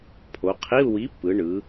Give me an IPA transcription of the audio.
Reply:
pʰo˩˧qʰi˧˥˧u̯ wi˨˥pːɯ˩˧ɳɯ˩˧

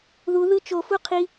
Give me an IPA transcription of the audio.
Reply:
ðu ðɯt͡ʃofu qʰi

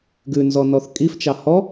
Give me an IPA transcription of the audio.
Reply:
ɡʉnzɔnɔθ kʼift͡ʃɑ hɔ

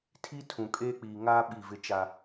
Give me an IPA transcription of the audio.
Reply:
tʰi˦tʰũ˨kʼeː˦ k͡piː˨ŋaː˦ ɓi˦˨vɪ˦t͡ʃa˦

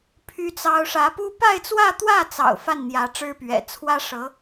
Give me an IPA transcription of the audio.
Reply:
pʰy˥t͡sɑ˥ʊ̯ ʂä˧˥pu˥ pa˥˧ɪ̯t͡swä˥˧t̪wä˥˩t͡sɑ̰˨˩ʊ̯ fa˥˩nn̪jä˧˥ ʈ͡ʂɻ̩˥pɥɛ̰˨˩ t͡sʰwä˥ ʂɤ˧˥

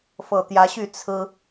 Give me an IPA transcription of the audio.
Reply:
fɤ˨˩t̪jä˨˦ɕy˥˨ t͡sʰɹ̩˦

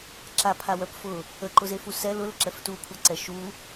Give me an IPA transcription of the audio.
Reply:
ǁapʰawœp fʊ | əǃʊzefu sɛ lʊləǁɛf tukʷʰaǀɛ ʃu

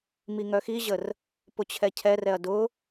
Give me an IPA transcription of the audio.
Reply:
miŋœxiʑər | pʊt͡ɕʰɛcʰɛrɛɐ̯ dʊ

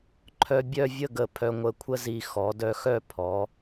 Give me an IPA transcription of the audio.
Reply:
ǃʰœ˧bʲœ˥˧vʲə˥˧ɡə˧˩ pʰœ˧ŋʷə˧˩kʷʰə˥zi˧˩ xɔ˩˧dœ˧xœ˥˧ pʰɔ˩˧

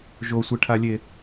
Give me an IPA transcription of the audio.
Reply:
ʒosʷɛʈʰalʲe

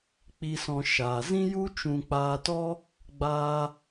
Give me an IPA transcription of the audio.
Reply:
k͡pi˧sɔ̃˧ ʃaː˧ zĩ˦ju˦ t͡ʃũ˧k͡paː˧tɔ˦ | ɡ͡baː˦

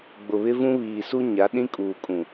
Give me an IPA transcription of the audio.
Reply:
ɡ͡bʊ˨βɪ˦vũ˦ βiː˨su˦ ɲa˨˦ɗĩ˦kʼuː˨kʼũ˨

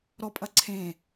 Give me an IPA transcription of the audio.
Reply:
ɾɔpʼɐ ǀʰẽ

